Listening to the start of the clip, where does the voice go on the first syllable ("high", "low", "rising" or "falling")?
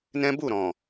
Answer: high